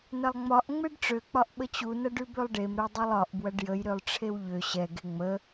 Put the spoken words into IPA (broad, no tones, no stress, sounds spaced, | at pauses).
n ɐ lˠ ŋ͡m ɒ ʔ ŋ͡m e ɖ ʈ͡ʂ ø k͡p ɒ ʔ ɓ ə t͡ɕ u n ɐ ɖ ʉ b ø lˠ ɖ e m ɾ ɛ dˤ ɛ lˠ ɒ ʔ b w ɐ ɖ j ə j ɾ ø lˠ ʈ͡ʂʰ e w ʎ ø ɕ ɛ ɡ e ŋ͡m ə